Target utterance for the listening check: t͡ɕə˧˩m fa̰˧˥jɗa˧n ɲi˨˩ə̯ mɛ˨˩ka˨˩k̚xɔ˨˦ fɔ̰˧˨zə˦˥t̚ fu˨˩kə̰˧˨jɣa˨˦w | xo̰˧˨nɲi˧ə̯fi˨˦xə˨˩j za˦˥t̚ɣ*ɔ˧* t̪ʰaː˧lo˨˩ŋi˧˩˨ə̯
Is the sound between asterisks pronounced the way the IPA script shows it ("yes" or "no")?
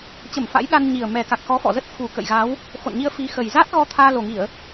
yes